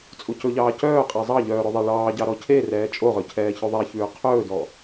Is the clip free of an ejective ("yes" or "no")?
no